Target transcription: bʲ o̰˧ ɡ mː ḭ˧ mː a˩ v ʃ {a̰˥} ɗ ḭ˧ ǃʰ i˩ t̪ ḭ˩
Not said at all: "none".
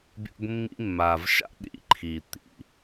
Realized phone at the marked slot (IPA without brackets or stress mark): a̰˥